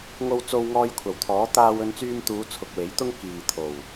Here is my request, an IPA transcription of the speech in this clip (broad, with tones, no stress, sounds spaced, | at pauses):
ŋ o˧ w t͡s o˧ w ŋ ɔː˧ j kʷʰ ɐ˨˩ w t̪ʰ ɔː˨˥ t̪ aː˧ w ɵ˧ n t͡s yː˧ m t̪ uː˨˧ t͡sʰ ʊ˨ k̚ w e˨˥ j t̪ ʊ˥ ŋ k iː˨ t̪ʰ o˨˩ w